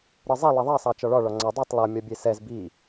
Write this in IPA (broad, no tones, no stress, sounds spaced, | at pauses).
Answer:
ɾ ɯ zˤ i lˠ i ðˤ ɑ sˤ ɑ t͡ʃ ɒ ɭ ɒ ɭ ɒ ŋ͡ǀ a dˤ ɛ tˤ lˠ ʌ mʲ ɒ bʲ e s ɛ z b i